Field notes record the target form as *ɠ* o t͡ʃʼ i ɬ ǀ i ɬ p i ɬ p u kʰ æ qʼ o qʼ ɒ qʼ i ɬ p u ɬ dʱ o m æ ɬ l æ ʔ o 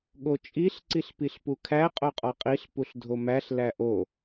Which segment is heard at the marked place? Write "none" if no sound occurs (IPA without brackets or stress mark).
ɠ